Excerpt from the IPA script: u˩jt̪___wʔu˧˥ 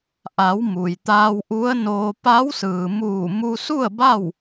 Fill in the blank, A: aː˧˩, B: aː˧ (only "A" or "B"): B